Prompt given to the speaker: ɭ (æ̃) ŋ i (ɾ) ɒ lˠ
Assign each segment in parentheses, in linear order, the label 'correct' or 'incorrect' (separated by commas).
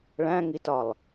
correct, incorrect